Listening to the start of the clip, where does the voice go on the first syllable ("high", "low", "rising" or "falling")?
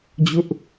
high